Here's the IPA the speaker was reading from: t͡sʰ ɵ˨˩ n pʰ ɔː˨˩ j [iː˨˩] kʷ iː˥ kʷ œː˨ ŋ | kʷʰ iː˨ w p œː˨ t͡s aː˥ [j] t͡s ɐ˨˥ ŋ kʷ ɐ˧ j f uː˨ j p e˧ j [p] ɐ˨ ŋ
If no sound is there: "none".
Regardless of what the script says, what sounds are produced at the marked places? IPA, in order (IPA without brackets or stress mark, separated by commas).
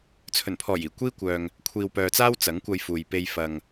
iː˨˩, w, f